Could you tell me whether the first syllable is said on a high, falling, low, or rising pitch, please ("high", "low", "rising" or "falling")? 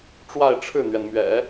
falling